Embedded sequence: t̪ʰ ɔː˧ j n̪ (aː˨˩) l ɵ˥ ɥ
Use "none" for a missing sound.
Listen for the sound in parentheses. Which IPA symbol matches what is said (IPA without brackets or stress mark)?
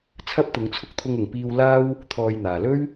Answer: aː˨